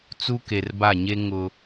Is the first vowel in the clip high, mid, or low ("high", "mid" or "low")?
high